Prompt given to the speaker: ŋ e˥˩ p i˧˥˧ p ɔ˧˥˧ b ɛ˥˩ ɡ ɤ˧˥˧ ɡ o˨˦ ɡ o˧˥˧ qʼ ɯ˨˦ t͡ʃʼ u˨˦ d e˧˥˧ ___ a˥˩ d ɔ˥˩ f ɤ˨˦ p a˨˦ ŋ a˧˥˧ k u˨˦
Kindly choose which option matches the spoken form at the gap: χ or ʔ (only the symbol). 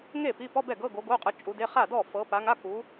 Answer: χ